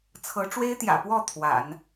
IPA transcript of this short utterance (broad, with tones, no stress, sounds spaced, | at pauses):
t͡sʰ ɤ˧˥ ʈ͡ʂ w e˥ ɪ̯ t̪ j ä̰˨˩ p w ɔ˥˩ t̪ʰ w a̰˨˩˦ n